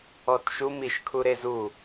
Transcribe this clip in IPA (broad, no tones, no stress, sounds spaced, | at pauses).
ɔ t ʃ u m i ʃ kʰ u ɾ e z u